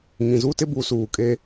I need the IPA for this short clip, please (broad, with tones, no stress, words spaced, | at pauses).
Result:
ŋĩ˨zu˦tɪ˦ bu˨˦suː˨kʼe˦